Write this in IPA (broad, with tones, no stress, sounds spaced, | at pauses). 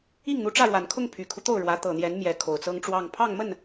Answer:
i˥˩ ŋ n̪ u˧˥ ʈ͡ʂ ä˥˩ ɻ w a˨˩ n kʰ ʊ˥˩ ŋ pʰ y˨˩ kʰ u˦ t̪ o˥˩ ʊ̯ ɻ w ä˧˥ t̪ ɤ˨˩ n̪ j ɛ˧˥ n m j ɛ˧˥ kʰ o˨˩ ʊ̯ t͡s ɤ˥ ŋ ʈ͡ʂ w ɑ˥˧ ŋ pʰ ɑ˥˧ ŋ m ə˥˩ n